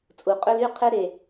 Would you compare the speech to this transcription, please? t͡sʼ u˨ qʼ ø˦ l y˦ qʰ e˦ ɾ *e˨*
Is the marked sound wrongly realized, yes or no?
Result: no